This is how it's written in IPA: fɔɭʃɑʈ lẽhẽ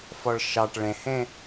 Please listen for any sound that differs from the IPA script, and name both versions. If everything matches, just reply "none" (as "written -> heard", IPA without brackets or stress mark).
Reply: l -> ɭ